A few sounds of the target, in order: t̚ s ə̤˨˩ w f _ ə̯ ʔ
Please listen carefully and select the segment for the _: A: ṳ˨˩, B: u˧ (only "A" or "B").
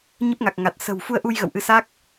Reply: B